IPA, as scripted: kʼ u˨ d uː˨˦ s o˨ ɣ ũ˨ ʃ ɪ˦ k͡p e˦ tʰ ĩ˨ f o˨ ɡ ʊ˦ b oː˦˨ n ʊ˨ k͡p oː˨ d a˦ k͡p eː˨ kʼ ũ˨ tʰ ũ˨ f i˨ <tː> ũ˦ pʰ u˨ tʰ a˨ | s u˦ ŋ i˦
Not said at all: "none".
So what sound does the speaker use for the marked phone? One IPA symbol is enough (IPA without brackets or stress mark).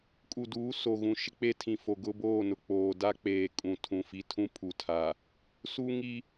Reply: tʰ